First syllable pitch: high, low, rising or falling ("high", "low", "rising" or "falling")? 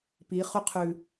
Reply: rising